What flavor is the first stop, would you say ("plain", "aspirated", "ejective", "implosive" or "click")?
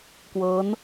plain